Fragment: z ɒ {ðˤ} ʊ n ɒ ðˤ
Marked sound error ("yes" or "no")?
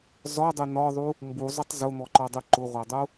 yes